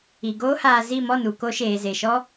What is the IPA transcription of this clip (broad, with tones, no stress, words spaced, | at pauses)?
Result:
i˨ɡoː˦haː˧ zi˦˨ mɔ˦˨nu˨ko˧ ʃeː˨ze˨ʃɔ˦